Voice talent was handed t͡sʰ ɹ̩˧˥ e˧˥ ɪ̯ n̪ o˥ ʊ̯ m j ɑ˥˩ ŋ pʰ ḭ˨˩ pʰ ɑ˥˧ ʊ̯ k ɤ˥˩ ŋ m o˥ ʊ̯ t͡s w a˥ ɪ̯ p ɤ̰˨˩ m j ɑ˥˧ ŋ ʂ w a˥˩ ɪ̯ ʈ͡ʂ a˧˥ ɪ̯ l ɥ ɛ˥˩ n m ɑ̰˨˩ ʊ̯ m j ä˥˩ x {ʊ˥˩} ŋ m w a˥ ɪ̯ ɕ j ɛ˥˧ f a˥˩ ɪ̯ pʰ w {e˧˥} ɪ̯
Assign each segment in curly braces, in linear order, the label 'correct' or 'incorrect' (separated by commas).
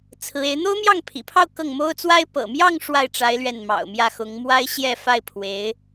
incorrect, correct